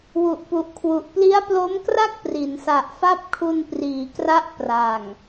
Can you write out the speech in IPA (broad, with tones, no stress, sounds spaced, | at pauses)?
w u˨˩ ʔ p u˨˩ ʔ kʰ w u˨˩ ʔ p l i˦˥ a̯ p l o˦˥ m k r a˥˩ k̚ p r i˩˦ n s a˨˩ ʔ f a˥˩ p̚ kʰ u˧ n p r iː˩˦ k r a˦˥ ʔ p r a˨˩ ŋ